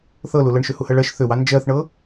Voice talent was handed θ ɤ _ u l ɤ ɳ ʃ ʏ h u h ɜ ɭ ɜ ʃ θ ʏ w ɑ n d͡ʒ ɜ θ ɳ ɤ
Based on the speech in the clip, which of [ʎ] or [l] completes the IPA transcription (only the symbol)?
l